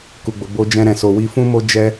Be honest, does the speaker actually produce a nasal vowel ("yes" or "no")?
yes